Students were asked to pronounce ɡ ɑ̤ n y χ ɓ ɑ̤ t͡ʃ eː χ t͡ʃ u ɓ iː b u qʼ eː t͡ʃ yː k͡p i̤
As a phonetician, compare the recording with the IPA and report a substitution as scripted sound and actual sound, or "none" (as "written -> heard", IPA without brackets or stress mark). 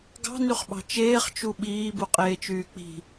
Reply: none